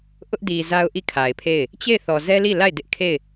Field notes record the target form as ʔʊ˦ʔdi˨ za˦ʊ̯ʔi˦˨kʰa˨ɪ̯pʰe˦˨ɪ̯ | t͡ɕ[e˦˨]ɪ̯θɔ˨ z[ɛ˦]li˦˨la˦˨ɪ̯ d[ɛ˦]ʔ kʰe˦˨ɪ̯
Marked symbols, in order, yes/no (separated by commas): yes, yes, no